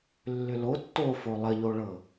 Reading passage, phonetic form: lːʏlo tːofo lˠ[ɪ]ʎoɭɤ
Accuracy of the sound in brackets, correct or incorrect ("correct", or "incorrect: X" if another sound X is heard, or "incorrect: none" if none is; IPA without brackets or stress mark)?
incorrect: ə